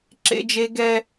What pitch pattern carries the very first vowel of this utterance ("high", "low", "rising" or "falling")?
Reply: high